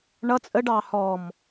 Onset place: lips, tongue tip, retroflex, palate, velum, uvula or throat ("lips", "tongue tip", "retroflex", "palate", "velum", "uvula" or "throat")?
retroflex